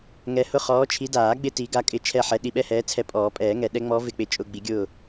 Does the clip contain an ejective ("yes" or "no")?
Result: yes